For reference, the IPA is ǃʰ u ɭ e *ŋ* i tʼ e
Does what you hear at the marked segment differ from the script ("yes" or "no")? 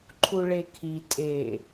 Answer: yes